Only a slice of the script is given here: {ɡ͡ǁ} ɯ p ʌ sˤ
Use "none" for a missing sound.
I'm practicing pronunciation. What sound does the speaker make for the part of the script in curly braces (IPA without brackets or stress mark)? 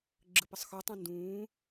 ɡ͡ǁ